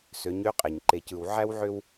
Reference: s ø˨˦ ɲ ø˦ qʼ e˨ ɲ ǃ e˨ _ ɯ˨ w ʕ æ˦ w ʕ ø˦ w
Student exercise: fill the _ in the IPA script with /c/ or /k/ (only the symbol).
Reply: c